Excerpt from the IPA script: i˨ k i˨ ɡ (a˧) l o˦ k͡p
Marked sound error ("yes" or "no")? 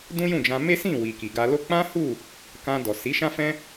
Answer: no